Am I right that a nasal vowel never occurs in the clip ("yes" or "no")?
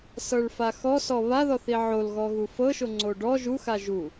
yes